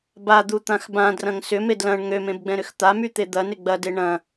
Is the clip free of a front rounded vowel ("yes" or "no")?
no